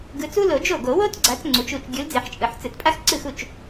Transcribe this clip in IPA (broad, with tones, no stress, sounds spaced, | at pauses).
ɡ ɯ˨˦ t͡s u˥ l o˨˩˦ d͡ʒ o˥˩ ɡ o˨˩˦ w o˥ t ɡ͡ǀ a˨˦ t͡s ŋ͡ǀ u˨˦ t͡ʃ u˥˩ t͡ʃ ɡʲ u˨˦ l d͡z e˨˩˦ ħ t͡ʃʼ ɯ˨˩˦ ħ t͡s ɯ˨˩˦ t pʼ a˥ x ǀ ɯ˥˩ x u˥˩ t͡ʃ